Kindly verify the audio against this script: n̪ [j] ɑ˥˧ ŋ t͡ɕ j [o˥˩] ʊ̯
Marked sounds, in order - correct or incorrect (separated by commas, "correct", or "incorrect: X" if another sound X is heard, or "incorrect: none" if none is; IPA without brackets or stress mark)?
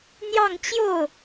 correct, correct